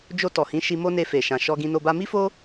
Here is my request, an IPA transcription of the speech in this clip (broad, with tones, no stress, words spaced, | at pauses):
d͡ʒo˧ tɔ˨hĩ˨˦ ʃi˧mo˦ne˧ fe˨ʃã˨ ʃɔ˧ɡĩ˧no˧ba˦ mi˦fo˦